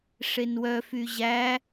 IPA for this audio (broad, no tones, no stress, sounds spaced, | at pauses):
ʂ e n w œ f y ʑ æ